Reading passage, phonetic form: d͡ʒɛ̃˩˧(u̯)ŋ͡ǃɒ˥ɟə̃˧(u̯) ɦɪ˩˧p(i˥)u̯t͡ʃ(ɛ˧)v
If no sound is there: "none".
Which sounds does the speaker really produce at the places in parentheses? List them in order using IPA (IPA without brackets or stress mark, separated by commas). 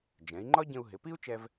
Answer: i̯, u̯, i˥, ɛ˧